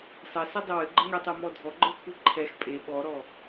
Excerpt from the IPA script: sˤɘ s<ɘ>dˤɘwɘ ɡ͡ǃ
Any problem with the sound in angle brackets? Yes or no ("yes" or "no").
yes